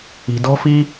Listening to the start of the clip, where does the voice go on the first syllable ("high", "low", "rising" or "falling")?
low